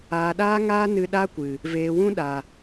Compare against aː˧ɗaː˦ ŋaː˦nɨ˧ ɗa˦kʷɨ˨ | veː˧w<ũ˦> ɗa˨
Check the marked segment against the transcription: correct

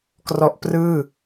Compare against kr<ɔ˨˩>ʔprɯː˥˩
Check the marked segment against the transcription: incorrect: ɔ˦˥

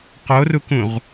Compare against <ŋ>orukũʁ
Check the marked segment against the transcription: incorrect: q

